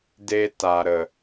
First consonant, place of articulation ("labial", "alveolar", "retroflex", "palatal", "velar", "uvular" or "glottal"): alveolar